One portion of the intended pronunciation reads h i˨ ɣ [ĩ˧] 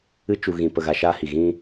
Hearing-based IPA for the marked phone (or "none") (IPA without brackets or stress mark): ĩ˧